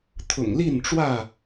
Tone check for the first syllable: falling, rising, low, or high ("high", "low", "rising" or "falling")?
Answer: low